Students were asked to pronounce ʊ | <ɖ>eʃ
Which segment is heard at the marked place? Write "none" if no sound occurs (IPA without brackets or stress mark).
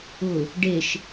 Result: ɖ